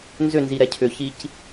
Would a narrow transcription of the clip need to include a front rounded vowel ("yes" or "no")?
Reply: yes